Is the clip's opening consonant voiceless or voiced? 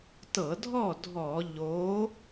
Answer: voiceless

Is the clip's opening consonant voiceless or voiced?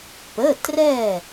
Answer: voiceless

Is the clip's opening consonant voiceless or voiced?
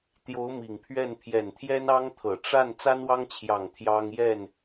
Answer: voiceless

